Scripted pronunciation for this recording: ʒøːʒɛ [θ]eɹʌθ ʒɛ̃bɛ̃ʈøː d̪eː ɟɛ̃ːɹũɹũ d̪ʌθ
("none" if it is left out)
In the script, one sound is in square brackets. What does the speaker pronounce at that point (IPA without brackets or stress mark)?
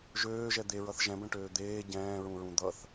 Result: d̪